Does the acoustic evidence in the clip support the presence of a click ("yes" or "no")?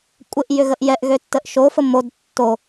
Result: no